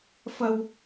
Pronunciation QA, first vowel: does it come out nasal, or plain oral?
oral